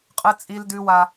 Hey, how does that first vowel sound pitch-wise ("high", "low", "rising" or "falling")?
high